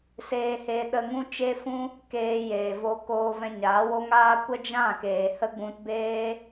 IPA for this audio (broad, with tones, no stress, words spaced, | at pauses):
seː˧he˧ ɗə˧ŋũ˦t͡ʃe˦fũ˦ | keː˧ jeː˨vo˧ koː˧vɛ̃˧ɲaː˨˦wo˦ ŋaː˦ kʷə˦d͡ʒã˦˨keː˨ hə˦ɡ͡bũ˧t beː˦